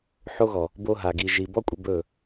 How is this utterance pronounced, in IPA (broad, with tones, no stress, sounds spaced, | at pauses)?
ħ o˧ ɣ ɔ˨ | b o˧ ɦ a˨ ɡ i˨ ʒ i˨ b ɔ˦ kʷʼ ɪ˧ b ɵ˦˨